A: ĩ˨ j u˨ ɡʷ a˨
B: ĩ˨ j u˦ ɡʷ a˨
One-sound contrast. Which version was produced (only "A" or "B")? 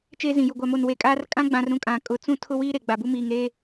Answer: A